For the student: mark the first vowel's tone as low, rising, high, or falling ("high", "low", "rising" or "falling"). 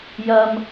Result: high